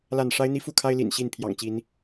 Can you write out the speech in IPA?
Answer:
l a˥˨ n ʂ a˦ ɪ̯ n̪ i˦ f u˥˨ kʰ a˦ ɪ̯ l ḭ˨˩ n ɕ i˥˨ n pʰ j ɑ̰˨˩ ŋ t͡ɕ i˨˦ n

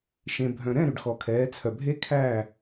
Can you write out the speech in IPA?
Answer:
ʃ ẽ˩ bʱ œ̃˩ ɾ ɛ̃˥˨ ɾ ʉ˩ ɖ x ɔ˩ kʰ ɛː˩˧ t͡sʰ œ˩ bʱ e˦˥ kʰ æː˥˨

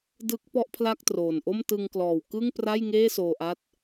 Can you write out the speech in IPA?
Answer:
d ɯ˦˥ k̚ p ɔ˥˩ ʔ pʰ l a˥˩ k̚ t r oː˨˩ n ʔ o˥˩ m t ɯ˧ ŋ k l ɔː˨˩ w k ɯ˥˩ ŋ p r a˥˩ j ŋ eː˥˩ s oː˧ ʔ a˦˥ t̚

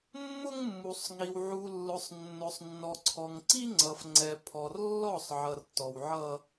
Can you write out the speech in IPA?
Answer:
mː ʊ˦ ŋ mː u˨ sˤ ŋ i˨ w ʕ u˨ lː ʊ˨ sˤ nː ʊ˨ sˤ nː ɔ˨ ǀʰ ɔ˨ ŋ ǀ i˦ ŋ͡ǀ ʌ˨ f ŋ͡ǀ ɛ˨ pʰ ɔ˨ r lː ɔ˦˨ sˤ ʕ ʌ˨ r t ɔ˨ w ʕ ʌ˦

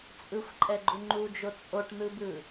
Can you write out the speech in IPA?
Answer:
t͡sʼ ɯ xʷ ǃʼ ɛ ɡ͡ǃ u ŋ͡ǃ u d͡ʒ o t͡sʼ o ʈ n̪ ɯ b ɯ

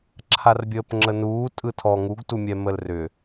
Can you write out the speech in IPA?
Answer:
ǁʰ a r bʲ əː p ŋ͡ǁ ə n uː tʼ ɯ tʰ ɔ ŋ u ɡ t u mʲ ɛ m ə l r ʏ

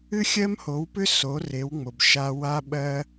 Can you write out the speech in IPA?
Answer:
ɨ˥ xʲ ɜ˥ m h o˩˥ w p ʏ˥ s o˩˥ r e˩˥ w ŋ͡m o˩ b ʃ a˧ w a˧ ɓ ɜ˧

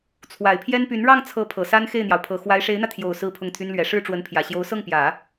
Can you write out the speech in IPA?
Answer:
t͡sʰ w a˨˩ ɪ̯ pʰ j ɛ˥ n p y˧˥ n ɻ ɑ˥˩ ŋ t͡sʰ ɤ˧˥ pʰ ɤ˨˩ s a˥ n x e˥˩ ɪ̯ n̪ j ɑ˩ ʊ̯ pʰ ɤ˨˩ x w a˧˥ ɪ̯ ʂ e˧˥ ɪ̯ n̪ ä˧ t̪ʰ j o˨˩ ʊ̯ s ɹ̩˥˧ pʰ ʊ˥˩ ŋ t̪ʰ y˥ n l ɥ ɛ˧˥ ʂ ɻ̩˥ ʈ͡ʂ w ə˧˥ n pʰ j ä˨˩ ɕ j o˧˥ ʊ̯ s ɤ˥˩ ŋ p j ä˨˩˦

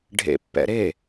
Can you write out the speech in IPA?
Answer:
ɖʱ ḛ pː ɛ̰ ɾ e

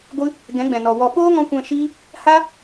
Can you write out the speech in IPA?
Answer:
ɡʷ ɨ˦ | ɡ ɛ̃˨˦ ɡ͡b ɛ̃˨ n ɔ˨ w ɔ˧ ɓ oː˦ ŋ ɔ̃˦ kʷ ɛ̃˧ ʃ iː˦ | h a˦

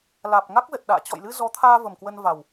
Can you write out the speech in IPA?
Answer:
l aː˨˩ p̚ ŋ a˦˥ k̚ z ə˨˩ t̚ ɗ a̰ː˧˨ t͡ɕ ɔ̰˧˨ j l ɨ˧ z ɔ˨˦ t̪ʰ aː˧ v ə˨˩ m k w ə˧ n v a˨˩ w

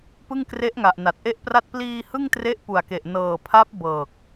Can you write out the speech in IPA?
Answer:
p ɯ˥˩ ŋ k r e˦˥ ʔ ŋ a˨˩ ʔ n a˨˩ t̚ ʔ e˥˩ ʔ p r a˥˩ t̚ p l iː˧ h ɯ˥˩ ŋ t r e˦˥ ʔ p u˨˩ a̯ k e˨˩ ʔ n ɤː˨˩ pʰ a˦˥ p̚ b ɤː˨˩ k̚

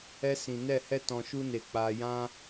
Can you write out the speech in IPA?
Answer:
ɛ˧ s ĩ˨ n ɛ˦˨ h ɛ˦ t ɔ̃˧ ʃ u˦ n e˧ k͡p aː˧ j ã˦

